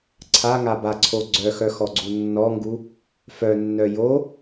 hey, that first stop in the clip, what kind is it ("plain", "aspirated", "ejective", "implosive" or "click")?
click